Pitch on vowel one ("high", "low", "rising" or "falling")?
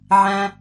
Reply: low